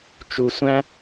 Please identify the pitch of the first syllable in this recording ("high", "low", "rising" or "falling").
low